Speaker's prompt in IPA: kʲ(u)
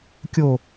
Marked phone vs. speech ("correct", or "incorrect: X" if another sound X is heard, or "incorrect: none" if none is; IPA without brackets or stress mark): incorrect: o